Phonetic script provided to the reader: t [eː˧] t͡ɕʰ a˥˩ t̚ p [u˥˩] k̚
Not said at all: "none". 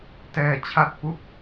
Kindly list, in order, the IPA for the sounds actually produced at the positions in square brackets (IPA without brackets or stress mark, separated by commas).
ɛː˧, u˥˩